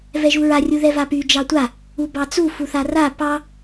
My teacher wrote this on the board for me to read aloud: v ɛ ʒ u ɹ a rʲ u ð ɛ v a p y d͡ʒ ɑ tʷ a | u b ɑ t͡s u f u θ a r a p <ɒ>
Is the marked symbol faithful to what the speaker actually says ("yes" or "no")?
no